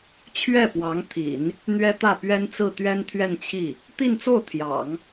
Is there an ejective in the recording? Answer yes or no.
no